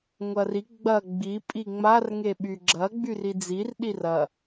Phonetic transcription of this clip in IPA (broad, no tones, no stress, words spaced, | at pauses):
ŋʷɐri ɡ͡bɐ ɡ͡bi pʼiŋ͡mar ŋeɓyɡ͡ǁɐ ɡ͡byrid͡zir ɗirɐ